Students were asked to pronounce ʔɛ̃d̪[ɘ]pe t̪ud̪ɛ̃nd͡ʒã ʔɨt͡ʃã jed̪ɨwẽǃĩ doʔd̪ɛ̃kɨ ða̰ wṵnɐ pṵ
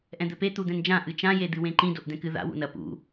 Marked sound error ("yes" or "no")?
no